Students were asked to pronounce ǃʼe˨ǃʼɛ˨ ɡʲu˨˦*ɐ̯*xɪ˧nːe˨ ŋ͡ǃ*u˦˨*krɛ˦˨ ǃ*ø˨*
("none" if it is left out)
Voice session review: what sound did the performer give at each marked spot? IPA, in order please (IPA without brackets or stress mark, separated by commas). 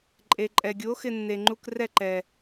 o̯, u˧, ɛ˨